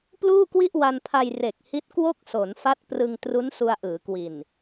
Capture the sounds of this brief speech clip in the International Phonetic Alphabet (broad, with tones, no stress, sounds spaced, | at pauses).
p l uː˥˩ k w i˥˩ ʔ w a˧ n pʰ a˧ j r e˨˩ k̚ h i˦˥ t̚ k w o˥˩ k̚ s o˩˦ n f a˦˥ t̚ p r ɯ˧ ŋ t r u˦˥ n s u˧ a̯ ʔ ɯː˩˦ k w i˨˩ n